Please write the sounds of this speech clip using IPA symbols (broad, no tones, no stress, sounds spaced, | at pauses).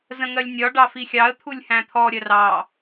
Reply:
z ə̃ ŋ ɜ lʲ nʲ ɒ ɖ ɑ f i xʲ ɑ ə̯ t̪ʰ u lʲ h æ̃ t̪ʰ ɔ ɾʲ ɜ r ɑ